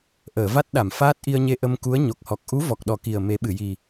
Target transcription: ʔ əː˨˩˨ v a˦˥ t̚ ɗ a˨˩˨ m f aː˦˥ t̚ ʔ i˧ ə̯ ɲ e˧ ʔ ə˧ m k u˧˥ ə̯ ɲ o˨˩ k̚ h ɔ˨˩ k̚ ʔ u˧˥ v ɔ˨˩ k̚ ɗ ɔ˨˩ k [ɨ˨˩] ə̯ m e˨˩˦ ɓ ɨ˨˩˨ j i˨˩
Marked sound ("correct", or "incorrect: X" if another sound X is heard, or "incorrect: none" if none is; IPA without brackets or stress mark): incorrect: i˨˩